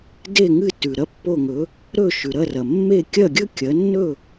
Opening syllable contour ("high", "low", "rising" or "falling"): falling